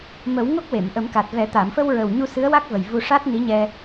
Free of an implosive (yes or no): yes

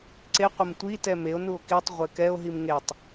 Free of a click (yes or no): no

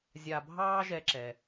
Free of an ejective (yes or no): yes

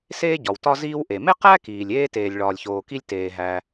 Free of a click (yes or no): yes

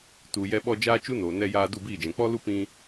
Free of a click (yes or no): yes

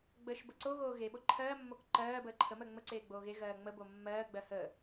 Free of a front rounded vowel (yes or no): yes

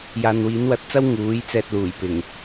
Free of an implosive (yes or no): yes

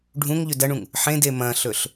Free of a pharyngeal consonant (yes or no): no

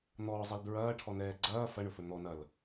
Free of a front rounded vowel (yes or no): yes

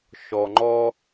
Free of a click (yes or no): no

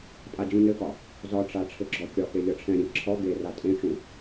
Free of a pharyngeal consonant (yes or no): yes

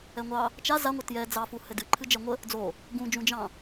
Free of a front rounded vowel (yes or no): yes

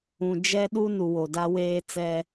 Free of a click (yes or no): yes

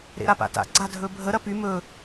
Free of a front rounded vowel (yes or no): no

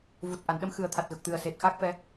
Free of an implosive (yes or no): no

